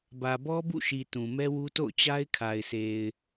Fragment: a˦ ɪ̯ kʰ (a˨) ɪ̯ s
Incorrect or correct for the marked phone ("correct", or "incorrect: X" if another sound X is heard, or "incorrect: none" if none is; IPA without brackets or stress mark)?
correct